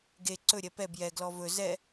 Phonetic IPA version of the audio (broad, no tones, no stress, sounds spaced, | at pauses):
ɡ e ǀ ɵ ɾʲ ɛ p ɛ b j ɛ ɡ l ɔ v ɵ z ɛ